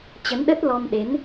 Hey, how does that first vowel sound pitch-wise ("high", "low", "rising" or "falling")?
rising